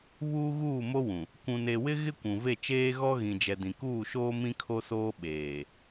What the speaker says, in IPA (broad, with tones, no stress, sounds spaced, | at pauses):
β uː˦ ɣ uː˦˨ m o˦ w ũ˨ | kʷ ũ˨ n e˨ w ɪ˦ ɣ ɪ˦ kʷ ũ˨ v e˦˨ t͡ʃ eː˦ ɣ ɔ˦ ɣ ĩ˨ d͡ʒ ɛ˨ d ĩ˨ k uː˦˨ ʃ oː˦ m ĩ˦ kʰ o˦ s oː˦ ɓ eː˨